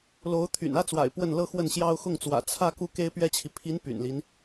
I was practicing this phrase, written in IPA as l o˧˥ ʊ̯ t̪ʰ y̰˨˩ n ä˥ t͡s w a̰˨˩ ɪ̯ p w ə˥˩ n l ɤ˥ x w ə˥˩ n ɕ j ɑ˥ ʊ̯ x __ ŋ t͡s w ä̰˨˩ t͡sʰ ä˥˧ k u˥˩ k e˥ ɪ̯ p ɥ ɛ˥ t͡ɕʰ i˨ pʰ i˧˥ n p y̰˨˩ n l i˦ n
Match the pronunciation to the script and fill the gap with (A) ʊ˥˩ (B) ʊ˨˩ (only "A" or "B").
A